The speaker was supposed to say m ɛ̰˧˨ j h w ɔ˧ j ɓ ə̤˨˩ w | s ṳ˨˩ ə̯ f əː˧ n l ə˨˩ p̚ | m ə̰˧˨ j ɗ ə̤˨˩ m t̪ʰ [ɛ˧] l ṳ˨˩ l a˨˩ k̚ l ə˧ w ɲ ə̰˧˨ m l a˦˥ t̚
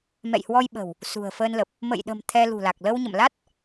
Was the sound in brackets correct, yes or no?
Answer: yes